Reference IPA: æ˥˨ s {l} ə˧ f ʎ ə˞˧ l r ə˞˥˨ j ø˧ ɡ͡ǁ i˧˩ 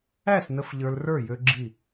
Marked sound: incorrect: n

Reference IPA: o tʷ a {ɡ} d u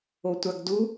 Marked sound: correct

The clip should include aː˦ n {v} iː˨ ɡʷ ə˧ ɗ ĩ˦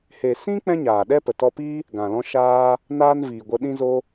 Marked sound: correct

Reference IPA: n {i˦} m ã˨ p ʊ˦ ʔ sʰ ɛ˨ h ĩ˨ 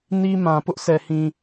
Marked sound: correct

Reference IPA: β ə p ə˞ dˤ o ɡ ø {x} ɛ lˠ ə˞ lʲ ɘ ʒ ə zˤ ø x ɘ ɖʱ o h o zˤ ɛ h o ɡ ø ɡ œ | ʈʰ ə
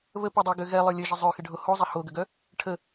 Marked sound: incorrect: ɣ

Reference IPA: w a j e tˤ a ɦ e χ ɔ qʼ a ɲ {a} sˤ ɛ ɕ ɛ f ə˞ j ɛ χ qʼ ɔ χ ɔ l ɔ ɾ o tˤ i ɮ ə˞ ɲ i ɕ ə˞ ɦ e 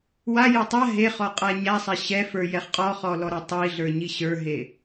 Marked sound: correct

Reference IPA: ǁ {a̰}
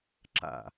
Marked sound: correct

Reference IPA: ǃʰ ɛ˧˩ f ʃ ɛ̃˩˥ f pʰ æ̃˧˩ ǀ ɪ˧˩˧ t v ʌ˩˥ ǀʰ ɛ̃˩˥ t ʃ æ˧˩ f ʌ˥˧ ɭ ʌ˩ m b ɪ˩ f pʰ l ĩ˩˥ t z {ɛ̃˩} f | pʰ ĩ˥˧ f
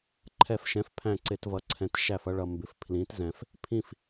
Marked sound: correct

